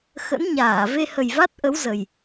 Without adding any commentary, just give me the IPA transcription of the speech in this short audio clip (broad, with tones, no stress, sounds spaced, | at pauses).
x ə̰˧˥ n ɲ aː˧˩ v e˧ h ə˨˩ j v a˦˥ t̚ ʔ ə˨˦ w z ə˨˩ j